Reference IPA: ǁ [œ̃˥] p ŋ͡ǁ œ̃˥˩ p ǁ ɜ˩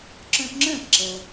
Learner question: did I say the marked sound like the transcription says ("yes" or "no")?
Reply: no